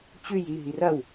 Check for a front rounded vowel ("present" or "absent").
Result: absent